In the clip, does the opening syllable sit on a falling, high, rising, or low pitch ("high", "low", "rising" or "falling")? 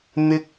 high